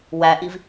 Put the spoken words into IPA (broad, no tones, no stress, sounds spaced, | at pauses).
w æ ʔ i v